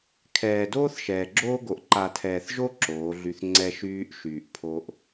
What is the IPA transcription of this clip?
kʰ ɛː˨ d oː˦ θ ʃ ɛː˨ ɡ͡ǁ oː˦ ɡ o˨ ʔ ǃ a˨ tʰ ɛː˨ θ ʒ o˦ ǁ oː˨˦ ɮ y˧ θ ŋ͡ǀ ɛ˦ ʃ yː˧ ʔ ʃ yː˨ ʔ pʰ o˧ ʔ

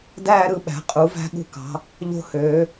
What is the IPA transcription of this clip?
d æː˥˧ ɾ ɯ˧ ɓ æ̤˩˧ qʼ u˩˧ v æ̤˧ ɠ ṳ˧˩ k ɑ̤˩˧ | ʎ o̤˧ h øː˩˧

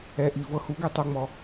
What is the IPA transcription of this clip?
ɛ˨˦ ʔ i˨ v ɤ˧ h u˨˦ ɡ ɛ˧ tˤ o˦ ŋ͡m ɔ˧

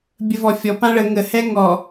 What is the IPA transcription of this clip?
bʲ ə v ɔ fʲ ɔ p ã ɭ ə ŋ ə h ɛ ŋ ɔ

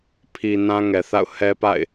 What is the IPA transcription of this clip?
pʰ i˨ n ã˦ ŋ ɛ˨ θ a̰˦˨ ʊ̯ h ɛ˦ p a̰˦˨ ɪ̯

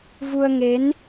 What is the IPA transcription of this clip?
v u˧ ə̯ ŋ e˨˦ n

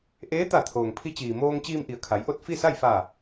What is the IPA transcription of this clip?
ʔ eː˧˥ t̪ a˧˩ t̪ʰ oː˩ ŋ pʰ i˧ t͡ɕ iː˩ m oː˧ ŋ t͡ɕ iː˧ m ʔ i˩ ə̯ kʰ a˩˧ j ʔ o˥˨ t̚ f i˥˨ s a˥˨ j f a˧˩

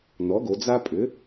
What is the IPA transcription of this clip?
n ɔ˩˥ ɡ o˩˧ d͡z a˥ pʼ ʏ˩˥

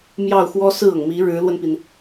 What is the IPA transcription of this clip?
m j ɑ˥˩ ʊ̯ x w ɔ˥ s ɹ̩˥˩ ɤ˩ ŋ m i˧˥ ɻ ɻ̩˧˥ l w ə˧ n p i˩ n

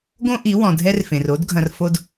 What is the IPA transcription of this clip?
ɡ õ˦ ʔ i˨˦ w ɔ̃˨ dʱ ɛ˦ r f ẽ˨ r o˦ d ɡʱ ɐ̃˨ r f o˨ d

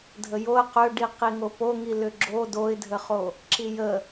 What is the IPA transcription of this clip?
dʱ ə j o ə̯ q ø ɖ i q i ŋ o p o ŋ i l ʏ ɡ͡ǁ o d o ɪ̯ dʱ ə χ o | ǁ i j ə

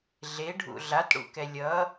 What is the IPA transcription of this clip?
ɮ e ɖʱ ṵ ɮ a t ɽ ṵ k ɛ lʲ ʌ

